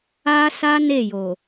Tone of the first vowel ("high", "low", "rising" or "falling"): high